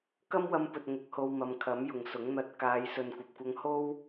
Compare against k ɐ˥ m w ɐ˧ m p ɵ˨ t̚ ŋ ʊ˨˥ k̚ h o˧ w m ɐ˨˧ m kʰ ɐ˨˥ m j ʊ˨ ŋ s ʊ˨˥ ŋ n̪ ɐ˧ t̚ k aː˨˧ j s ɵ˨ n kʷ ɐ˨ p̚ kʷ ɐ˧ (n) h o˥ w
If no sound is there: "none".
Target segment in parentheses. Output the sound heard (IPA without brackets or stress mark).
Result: ŋ